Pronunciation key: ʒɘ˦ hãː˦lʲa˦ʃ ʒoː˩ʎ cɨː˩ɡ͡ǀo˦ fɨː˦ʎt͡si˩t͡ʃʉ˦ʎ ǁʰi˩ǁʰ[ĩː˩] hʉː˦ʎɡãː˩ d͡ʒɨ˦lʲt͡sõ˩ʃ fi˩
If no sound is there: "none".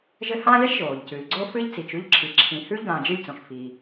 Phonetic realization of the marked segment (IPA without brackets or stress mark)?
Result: ĩ˩